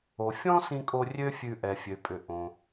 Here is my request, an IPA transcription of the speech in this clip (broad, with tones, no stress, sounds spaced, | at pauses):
o˩ fʲ ɔ̃˥ s ĩ˧ kʼ o˧ rʲ ø˥ fʲ ʉ˧ ʔ ɛ˩ fʲ ø˩ pʼ ʏ˩ ʔ õ˩